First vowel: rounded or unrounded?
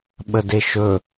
unrounded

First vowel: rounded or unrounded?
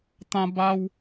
unrounded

